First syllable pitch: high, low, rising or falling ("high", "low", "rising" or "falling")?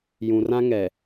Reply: low